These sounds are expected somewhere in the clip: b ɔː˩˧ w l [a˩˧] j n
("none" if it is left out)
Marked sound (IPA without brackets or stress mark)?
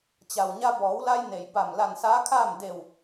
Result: a˧